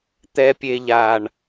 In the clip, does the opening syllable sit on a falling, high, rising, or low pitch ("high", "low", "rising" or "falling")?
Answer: low